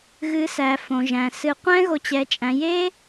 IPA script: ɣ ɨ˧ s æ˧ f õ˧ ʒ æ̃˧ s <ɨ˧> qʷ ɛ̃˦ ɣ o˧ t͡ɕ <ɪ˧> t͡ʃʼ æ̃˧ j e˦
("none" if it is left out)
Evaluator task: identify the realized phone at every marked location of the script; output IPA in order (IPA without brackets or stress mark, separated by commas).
ɨ˧, ɛ˧